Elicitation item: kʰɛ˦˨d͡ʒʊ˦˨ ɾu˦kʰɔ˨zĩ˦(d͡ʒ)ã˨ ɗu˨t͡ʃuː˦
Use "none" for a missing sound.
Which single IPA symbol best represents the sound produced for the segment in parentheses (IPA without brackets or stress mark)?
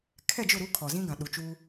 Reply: ɡ